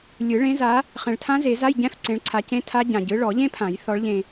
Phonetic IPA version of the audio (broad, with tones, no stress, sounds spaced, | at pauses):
lʲ ɯ˨˩˦ ɭ ẽ˨˦ z a˨˦ | χ ɛ̃˨ ɭ tʰ ã˦˥ z e˨˩˦ z a˧˥˧ j ɟ ɛ̃˧˥˧ f ǀ ẽ˨˦ ɭ ǀʰ a˨˦ c ẽ˧˥˧ tʰ a˦˥ ɟ ã˨ ɟ ɯ˨˦ ɭ ɔ˨˩˦ ʎ ẽ˦˥ pʰ ã˨˩˦ j θ ɔ˨˦ ɭ ʎ ẽ˨